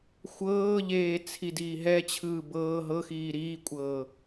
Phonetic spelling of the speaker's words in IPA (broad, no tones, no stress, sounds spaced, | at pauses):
xʷ ɤː ʎ eː t͡sʰ i d iː ɦ ɛ t͡ɕʰ ɯː b ɤː ɦ ɤ x iː ɾ iː kʷʼ ɤː